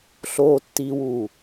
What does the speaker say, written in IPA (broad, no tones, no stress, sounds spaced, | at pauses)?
ɬ oː tː iː w uː